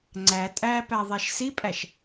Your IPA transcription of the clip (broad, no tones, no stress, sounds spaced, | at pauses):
ŋ͡ǀ æ tʼ æ p æ ðˤ æ ʃ s i pʼ æ ʃ